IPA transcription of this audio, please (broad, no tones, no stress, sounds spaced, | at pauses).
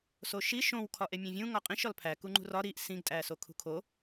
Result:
s o ʃ i ʃ õ w kʰ ɒ ʔ e mʲ æ̃ vʲ ũ ŋ ɒ qʼ ĩ ʃ ɒ l pʰ æ k u ŋ͡ǃ ṳ r ɒ ɾ i ʔ s ĩ ɡ tʼ æ s o kʰ ṳ kʰ o